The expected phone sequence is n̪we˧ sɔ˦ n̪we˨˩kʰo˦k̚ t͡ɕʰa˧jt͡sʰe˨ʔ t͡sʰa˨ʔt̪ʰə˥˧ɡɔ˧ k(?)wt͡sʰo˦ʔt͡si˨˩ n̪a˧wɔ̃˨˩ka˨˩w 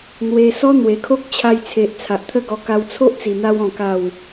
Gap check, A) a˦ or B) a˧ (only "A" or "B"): B